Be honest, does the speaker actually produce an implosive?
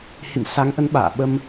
yes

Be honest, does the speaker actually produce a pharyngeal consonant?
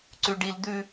no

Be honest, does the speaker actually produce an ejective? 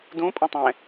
yes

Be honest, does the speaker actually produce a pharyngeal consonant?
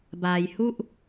no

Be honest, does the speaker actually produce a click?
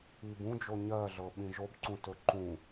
yes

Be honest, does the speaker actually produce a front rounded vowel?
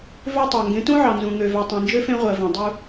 yes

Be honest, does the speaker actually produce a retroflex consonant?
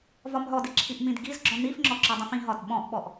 no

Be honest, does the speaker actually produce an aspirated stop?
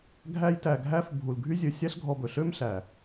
no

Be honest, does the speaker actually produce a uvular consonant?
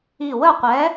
yes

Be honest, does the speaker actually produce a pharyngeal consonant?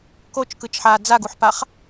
yes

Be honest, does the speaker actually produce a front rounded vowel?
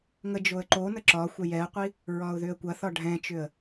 yes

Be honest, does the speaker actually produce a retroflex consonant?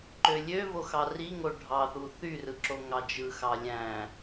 yes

